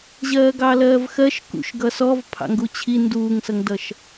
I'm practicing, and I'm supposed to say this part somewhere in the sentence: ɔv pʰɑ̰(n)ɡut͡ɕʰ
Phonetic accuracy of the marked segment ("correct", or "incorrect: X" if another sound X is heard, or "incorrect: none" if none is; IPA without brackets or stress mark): incorrect: ŋ